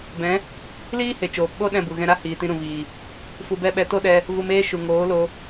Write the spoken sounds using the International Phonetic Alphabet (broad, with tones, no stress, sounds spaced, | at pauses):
b ɛ̃˨˦ | l iː˦ h e˨ t͡ʃ oː˨ p ɓ o˦ ɗ ɛ̃˦˨ b u˨ ɣ ɛ̃˧ ɾ a˦ h iː˨ t ĩ˧ ɾ ũ˨ v iː˨ | f u˧ b ɛ˦ ɓ ɛ˧ t o˦ ɗ ɛ˧ | v u˧ m eː˦ ʃ u˨ ŋ oː˨˦ l o˧